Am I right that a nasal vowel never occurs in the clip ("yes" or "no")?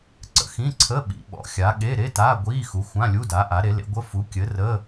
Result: no